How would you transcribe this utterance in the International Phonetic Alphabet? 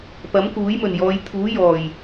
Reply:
pɐ˨˥mkuː˨˥jmɵ˨˩njɔː˨˧j t̪ʰuː˨˥jɔː˨˩j

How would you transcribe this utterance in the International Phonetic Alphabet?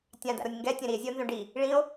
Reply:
tʲãda̰ɾonʲ ŋɡɛtʲɛ̃ ɾie̯zʲɛo̯nzõ ɖi | ɭĩo̯

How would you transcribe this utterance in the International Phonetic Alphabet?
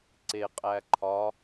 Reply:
ǀe qʼæǃʰɒ

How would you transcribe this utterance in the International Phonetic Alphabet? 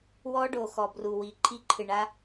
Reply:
wɔ˦ɖo˨ xɔ˨ bru˨wi˨ǃʰi˦ ǃʰɨ˨ɳa˦

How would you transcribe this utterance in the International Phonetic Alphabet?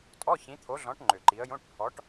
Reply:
tʼɔ˧˥˧ çĩ˨˦t̪ʰo˨˦ɮɔ̃˨˦ʈ ŋ͡ǃø˨˩ǃi˨˦ə̯jõ˧˥˧ʈ pʰɔ˨˦ʈ

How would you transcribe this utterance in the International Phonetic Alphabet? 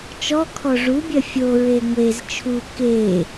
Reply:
t͡ʃɔ kʰɔʐubʲɜ fʲoɹe ŋʷez t͡ʃʰu ke

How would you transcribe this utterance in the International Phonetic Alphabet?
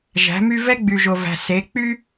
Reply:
ʒæ̤˩˧my˧ vɛ˥ɡ͡by˩ʒo˩væ̤˩ se˩˧ k͡py˥

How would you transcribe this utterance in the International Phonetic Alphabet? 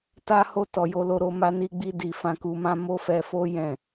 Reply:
ta˦ho˦˨ tɔ˨jo˧ lo˧ɾo˧ ma˧ni˧ɡ͡bi˧ di˨fã˧ku˧mã˦ mo˦fɛ˧fo˦ jɛ̃˦˨

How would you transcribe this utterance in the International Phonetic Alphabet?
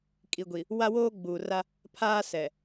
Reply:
kʼi˨ɡʷi˨ | wa˦woː˦ɡ͡buː˨ra˦ | pʰaː˦sɛ˨

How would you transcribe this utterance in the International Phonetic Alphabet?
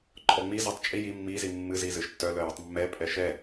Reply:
ǃʼɔŋ͡mizɔtˤ t͡ʃʼi ji mːizi mːɨzi zɨʃtːœ lœjɨtˤmːɛ pʼɛʃɛ

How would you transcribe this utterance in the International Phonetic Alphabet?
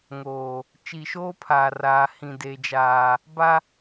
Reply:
ŋoː˨ | t͡ʃi˨ʃoː˦pʰaː˨raː˨ hĩ˨deː˨d͡ʒaː˨ | ba˦

